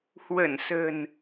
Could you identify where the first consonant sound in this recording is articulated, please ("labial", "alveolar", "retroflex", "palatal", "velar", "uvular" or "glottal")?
glottal